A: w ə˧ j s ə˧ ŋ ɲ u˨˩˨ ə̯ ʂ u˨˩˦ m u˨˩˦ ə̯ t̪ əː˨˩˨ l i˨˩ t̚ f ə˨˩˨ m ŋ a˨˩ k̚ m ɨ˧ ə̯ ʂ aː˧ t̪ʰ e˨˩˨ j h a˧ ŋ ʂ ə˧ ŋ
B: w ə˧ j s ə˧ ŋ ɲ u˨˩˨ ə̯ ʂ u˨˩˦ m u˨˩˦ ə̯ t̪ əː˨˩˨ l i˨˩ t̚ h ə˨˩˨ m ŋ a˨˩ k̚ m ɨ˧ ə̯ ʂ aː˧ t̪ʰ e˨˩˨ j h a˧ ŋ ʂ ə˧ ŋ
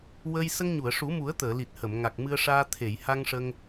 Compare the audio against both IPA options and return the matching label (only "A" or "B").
B